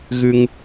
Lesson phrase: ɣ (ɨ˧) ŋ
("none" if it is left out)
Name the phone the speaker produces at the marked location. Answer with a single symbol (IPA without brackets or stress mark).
ɨ˧